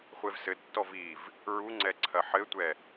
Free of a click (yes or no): no